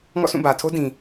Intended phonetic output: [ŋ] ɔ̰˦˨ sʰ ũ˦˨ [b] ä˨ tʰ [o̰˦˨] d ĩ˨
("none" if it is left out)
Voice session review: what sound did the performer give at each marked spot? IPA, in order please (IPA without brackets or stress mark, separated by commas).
ŋ, b, o˦